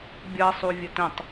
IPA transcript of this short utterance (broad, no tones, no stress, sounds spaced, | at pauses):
bʲ ʌ sˤ u vʲ ə t ə̃ tˤ